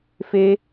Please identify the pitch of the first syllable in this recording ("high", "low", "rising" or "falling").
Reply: high